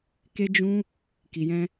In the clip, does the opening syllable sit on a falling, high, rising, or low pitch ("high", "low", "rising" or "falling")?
high